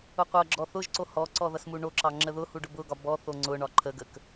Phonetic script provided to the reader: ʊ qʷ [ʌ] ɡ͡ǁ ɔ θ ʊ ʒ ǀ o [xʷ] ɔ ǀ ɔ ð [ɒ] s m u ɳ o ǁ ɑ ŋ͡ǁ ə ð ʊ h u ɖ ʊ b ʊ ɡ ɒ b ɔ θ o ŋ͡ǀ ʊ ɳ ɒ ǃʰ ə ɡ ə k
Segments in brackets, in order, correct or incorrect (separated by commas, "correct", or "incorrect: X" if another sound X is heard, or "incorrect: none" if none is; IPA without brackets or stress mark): correct, incorrect: h, incorrect: ʌ